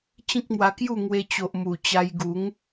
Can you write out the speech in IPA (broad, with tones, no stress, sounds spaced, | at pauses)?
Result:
t͡ɕ ĩ˦ k̚ m w a˧ k j u˥˧ ŋ w e˧ t͡ɕ o˨ ʔ m u˨˩ t͡ɕ a˧ j ɡ u˨˦ ŋ